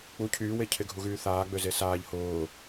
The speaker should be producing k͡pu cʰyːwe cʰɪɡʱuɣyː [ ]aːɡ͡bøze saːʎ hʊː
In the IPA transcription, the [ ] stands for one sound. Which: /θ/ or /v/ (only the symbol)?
θ